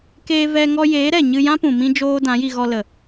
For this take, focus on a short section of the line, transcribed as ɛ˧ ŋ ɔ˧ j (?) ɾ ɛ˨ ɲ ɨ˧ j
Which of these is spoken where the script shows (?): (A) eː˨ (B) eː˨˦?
B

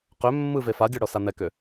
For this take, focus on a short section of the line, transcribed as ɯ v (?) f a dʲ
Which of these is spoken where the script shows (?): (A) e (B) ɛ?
A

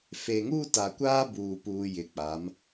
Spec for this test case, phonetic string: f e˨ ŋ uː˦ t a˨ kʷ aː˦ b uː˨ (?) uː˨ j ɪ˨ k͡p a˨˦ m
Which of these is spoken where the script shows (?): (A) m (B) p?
B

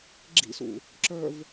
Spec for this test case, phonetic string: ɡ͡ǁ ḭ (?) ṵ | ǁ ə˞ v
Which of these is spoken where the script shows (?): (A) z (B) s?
B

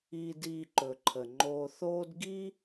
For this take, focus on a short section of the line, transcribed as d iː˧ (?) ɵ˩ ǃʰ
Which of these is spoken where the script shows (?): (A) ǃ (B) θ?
A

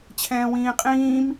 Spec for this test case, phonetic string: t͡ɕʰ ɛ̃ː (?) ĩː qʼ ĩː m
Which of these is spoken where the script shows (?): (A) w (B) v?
A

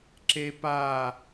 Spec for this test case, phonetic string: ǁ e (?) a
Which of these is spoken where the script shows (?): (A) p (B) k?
A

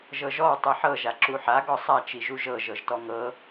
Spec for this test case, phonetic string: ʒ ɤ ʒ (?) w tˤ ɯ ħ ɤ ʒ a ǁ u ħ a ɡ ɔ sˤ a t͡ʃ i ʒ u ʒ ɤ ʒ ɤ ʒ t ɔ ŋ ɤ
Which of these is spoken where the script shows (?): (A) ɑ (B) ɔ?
B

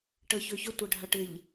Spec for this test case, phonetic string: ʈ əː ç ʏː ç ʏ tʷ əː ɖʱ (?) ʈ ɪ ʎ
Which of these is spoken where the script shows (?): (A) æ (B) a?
B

